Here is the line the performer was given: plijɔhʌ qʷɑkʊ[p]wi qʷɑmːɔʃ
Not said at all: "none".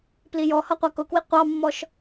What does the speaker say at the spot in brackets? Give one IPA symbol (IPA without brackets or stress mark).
k